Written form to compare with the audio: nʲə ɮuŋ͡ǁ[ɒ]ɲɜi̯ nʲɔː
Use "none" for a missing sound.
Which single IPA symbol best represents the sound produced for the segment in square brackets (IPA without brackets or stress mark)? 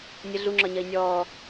ɒ